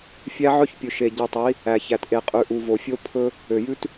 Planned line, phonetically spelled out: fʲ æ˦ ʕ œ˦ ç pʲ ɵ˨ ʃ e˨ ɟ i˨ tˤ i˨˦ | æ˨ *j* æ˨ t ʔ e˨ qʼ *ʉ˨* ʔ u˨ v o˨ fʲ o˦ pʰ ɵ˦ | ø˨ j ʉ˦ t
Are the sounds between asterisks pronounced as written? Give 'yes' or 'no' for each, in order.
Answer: no, yes

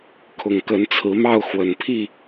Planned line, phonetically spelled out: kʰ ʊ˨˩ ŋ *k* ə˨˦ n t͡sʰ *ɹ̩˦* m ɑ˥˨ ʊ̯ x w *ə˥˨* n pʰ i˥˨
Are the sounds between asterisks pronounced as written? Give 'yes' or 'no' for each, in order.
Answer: yes, no, no

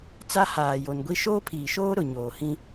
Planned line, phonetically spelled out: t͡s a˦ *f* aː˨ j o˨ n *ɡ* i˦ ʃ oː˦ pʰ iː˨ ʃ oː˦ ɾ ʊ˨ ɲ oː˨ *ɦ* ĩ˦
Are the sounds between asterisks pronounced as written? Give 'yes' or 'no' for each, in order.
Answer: no, no, no

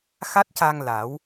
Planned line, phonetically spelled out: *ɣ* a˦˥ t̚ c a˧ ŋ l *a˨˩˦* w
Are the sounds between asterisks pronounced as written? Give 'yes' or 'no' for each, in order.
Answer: no, yes

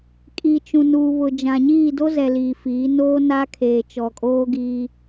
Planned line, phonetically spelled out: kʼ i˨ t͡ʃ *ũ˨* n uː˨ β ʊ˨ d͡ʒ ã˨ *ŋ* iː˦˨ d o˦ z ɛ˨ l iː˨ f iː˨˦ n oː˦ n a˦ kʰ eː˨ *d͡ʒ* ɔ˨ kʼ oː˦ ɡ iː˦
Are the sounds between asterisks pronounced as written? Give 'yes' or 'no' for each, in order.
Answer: yes, no, no

